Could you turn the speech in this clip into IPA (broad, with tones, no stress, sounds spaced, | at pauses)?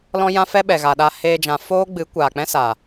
l ɔ̃˦ j ã˦ f ɛ˦ ɓ ɛ˨ ɣ a˨ ɗ a˧ h eː˧ d͡ʒ ã˨ f oː˦ ɡ͡b ɨ˨˦ kʷ aː˨ k͡p ɛ̃˦ s aː˨